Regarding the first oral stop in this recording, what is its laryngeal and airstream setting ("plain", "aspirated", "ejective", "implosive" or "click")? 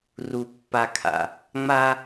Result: plain